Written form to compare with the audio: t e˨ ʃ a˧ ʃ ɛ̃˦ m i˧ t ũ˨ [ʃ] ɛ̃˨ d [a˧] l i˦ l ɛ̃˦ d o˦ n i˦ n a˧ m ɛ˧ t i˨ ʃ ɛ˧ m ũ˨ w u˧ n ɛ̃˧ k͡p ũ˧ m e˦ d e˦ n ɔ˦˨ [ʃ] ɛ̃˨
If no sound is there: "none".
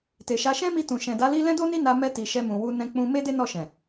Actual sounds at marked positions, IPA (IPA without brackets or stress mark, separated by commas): ʃ, a˧, ʃ